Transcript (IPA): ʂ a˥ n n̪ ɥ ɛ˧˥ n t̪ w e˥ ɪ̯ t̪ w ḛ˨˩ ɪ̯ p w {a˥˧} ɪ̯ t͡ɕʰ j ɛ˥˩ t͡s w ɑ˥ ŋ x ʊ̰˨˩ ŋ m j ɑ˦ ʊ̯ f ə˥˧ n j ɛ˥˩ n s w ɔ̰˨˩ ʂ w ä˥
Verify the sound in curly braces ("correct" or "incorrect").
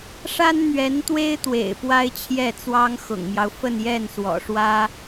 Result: incorrect